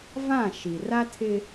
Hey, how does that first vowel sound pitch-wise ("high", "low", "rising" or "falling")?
falling